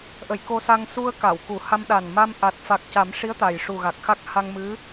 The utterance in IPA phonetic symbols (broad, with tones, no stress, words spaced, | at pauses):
ʔə˨˩˨j ko˧sa˧ŋ su˧ə̯ ka˨˩˨wku˨˩˦ ha˧mɗa˨˩n ma˧m ʔa˨˩t̚ fa˨˩k̚ca˨˩˦mʂi˧˥ə̯ t̪a˨˩jʂu˨˩ɣa˨˩k̚xa˦˥k̚ ha˧ŋmɨ˧˥